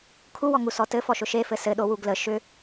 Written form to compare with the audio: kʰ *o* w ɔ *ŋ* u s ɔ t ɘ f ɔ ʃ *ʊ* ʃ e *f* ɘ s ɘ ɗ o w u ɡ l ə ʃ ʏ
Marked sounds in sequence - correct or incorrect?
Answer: incorrect, correct, correct, correct

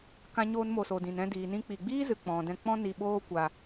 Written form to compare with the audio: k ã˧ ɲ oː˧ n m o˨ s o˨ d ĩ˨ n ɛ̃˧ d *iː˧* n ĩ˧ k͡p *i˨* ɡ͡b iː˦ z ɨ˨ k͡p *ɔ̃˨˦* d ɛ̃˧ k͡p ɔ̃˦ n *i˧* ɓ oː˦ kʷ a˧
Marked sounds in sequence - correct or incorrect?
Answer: incorrect, correct, incorrect, correct

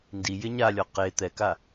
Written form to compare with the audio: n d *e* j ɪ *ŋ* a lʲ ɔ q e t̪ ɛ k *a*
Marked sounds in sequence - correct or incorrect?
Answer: incorrect, incorrect, correct

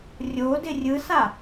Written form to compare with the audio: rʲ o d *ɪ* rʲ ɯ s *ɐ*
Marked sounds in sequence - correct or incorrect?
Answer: correct, incorrect

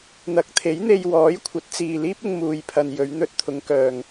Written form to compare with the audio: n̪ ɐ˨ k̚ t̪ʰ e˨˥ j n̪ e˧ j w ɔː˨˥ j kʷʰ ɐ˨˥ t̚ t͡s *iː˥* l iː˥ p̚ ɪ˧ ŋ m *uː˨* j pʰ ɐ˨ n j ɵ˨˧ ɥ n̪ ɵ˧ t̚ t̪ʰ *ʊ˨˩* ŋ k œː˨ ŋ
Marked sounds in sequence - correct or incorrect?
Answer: incorrect, correct, incorrect

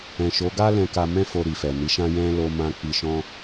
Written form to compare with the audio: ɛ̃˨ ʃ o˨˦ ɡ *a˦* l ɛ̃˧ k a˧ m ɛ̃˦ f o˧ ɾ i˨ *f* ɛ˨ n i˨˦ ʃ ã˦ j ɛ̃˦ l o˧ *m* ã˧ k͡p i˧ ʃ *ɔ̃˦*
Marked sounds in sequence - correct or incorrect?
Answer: correct, correct, correct, correct

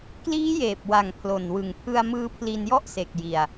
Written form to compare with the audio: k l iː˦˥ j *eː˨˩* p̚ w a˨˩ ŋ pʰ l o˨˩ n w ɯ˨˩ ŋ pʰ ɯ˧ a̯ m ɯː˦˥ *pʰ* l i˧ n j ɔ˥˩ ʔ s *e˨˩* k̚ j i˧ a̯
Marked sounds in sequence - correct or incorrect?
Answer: correct, correct, correct

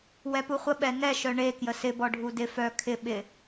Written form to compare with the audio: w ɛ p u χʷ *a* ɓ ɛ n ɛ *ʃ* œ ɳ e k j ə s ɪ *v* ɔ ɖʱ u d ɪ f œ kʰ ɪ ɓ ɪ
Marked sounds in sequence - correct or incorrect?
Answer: incorrect, correct, incorrect

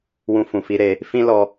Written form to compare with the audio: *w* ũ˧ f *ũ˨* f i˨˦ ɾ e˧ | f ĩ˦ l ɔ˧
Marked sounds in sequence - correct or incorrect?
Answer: correct, correct

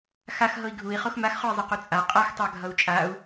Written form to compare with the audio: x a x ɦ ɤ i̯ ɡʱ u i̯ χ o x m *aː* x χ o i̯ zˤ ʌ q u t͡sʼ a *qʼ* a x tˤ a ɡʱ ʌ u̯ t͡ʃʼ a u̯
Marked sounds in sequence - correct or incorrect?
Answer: incorrect, correct

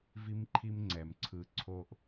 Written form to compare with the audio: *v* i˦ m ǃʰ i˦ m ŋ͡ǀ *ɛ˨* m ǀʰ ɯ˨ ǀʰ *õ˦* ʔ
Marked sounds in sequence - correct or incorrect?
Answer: correct, correct, incorrect

